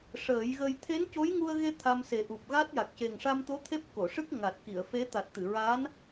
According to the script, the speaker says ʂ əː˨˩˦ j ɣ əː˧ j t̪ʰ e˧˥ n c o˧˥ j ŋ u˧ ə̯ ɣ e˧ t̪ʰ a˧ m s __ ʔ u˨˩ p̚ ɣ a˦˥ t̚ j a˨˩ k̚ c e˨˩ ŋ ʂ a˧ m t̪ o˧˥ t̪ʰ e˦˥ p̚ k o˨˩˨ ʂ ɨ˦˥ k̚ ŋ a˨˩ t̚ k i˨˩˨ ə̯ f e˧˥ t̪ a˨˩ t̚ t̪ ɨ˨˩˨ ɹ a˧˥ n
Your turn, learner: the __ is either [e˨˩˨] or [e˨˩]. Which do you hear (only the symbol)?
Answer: e˨˩